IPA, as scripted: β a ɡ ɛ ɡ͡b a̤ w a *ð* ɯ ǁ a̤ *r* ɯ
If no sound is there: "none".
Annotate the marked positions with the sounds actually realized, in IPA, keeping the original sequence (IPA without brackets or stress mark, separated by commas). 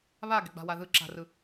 ð, r